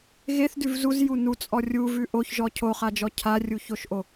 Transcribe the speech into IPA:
ɣeθdʉv zuzju nut͡sʼɔ rʲuvʉ ʔoçʒɔ cʰoχad͡ʒɔ cʰarʲuçoʃʔo

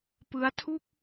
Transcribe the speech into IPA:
pɯ˦˥a̯tʰu˥˩k̚

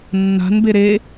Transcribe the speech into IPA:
nːa̤nbe ɾe

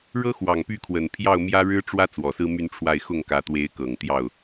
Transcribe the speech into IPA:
ɻɤ˥xwɑ˨˩ŋ py˥˩ kʰwə˨˩n pʰjɑ˥˩ʊ̯mjä˥ɻɻ̩˥ ʈ͡ʂwä˥ t͡swɔ˨˩sɹ̩˥my˥˧nʈ͡ʂʰwa˥˧ɪ̯ xʊ˥˩ŋkä˧˥t̪we˧˥ɪ̯kɤ˨˩ŋ t̪jɑ˥˩ʊ̯

